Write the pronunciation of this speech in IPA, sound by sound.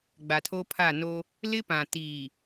ɡ͡b a˨ tʰ o˦ pʰ a˦˨ n o˦ | l ɪ˦ p ã˨ t iː˨

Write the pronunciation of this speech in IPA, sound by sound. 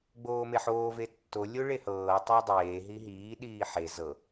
ɡ͡b oː m e ħ oː v e tː o lʲ o ɭ e h ɤː tˤ ɤ dˤ eː ɦ i ɦ iː ɗ iː ħ e z ɤ

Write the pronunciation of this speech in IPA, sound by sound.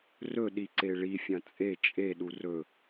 r ɵ ɗ i ǀ e ɭ i fʲ ɐ̃ t͡sʼ e t͡ʃʼ e ɗ u r ɵ

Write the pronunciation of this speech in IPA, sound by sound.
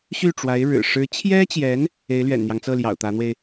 ɕ y˥˩ ʈ͡ʂ w a˧˥ ɪ̯ ɻ ɻ̩˨˩ ʂ ɻ̩˧˥ t͡ɕʰ j ɛ˥ t͡ɕ j ɛ˧˥ n | e˧˥ ɪ̯ l ɥ ɛ̰˨˩ n n̪ j ɑ˦ ŋ t͡s ɤ˥˩ l j ɑ̰˨˩ ʊ̯ t̪ ä˧˥ n̪ w e˧ ɪ̯

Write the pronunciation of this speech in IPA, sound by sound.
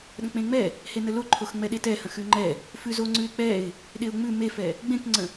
ɗ ə̃ k͡p ẽ ŋ͡m ɛ | h e n ə l o ǃʰ o x ŋ͡m ɛ ɗ e t ɛ h ə̃ x ʉ ŋ͡ǃ ɛ | f ʉ z o ŋ͡ǀ ʉ ɪ̯ k͡p ɛ ɪ̯ | ɗ e ʊ̯ ŋ͡m ʉ m e f ɛ | ɡ͡b ẽ k ŋ͡ǀ ə̃

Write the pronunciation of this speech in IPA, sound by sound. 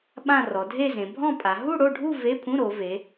ɓ ã˥˧ r ɔ˩˧ dʱ e˥˧ z ẽ˩˧ bʱ ɔ̃˥˧ pʼ a˩˧ ɦ u˥˧ ɽ o˥˧ ɖʱ u˥˧ v e˧˥˧ pʰ ũ˧˥˧ ɾ o˩˧ v e˩˧

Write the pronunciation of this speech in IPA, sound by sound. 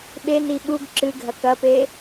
ɓ e n i ɓ u ɡ ǁ ɨ ɡʱ ɐ k ɐ p e

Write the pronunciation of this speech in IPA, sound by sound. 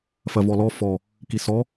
f ɜ v ɔ l ɔ f ɔ | k i s ɔ

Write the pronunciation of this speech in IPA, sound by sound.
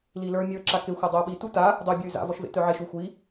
l i l ə˞ mʲ ə˞ ǁ a k e xʷ a dˤ ɤ u̯ ɓ i t u t a | dˤ u i̯ bʲ ə˞ y̯ z a̰ v ɔ ʃ v ḛ t œ ʕ e ʃ u xʷ i

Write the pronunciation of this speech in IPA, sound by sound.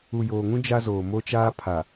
u˨ j oː˨ ŋ ũ˦ d͡ʒ a˦ z oː˨ m o˦ t͡ʃ aː˦ pʰ a˨

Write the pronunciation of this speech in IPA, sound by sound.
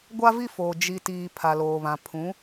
ɡʷ a˦ v i˦ f oː˨ d͡ʒ i˨ t iː˨ pʰ a˨ l oː˨ β ã˨ pʰ ũ˨˦

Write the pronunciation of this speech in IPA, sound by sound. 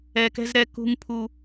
ɛ˦ k ɛ̤˦ z ɾ ɛ˦ k ṳ˦ ŋ pʰ u˦

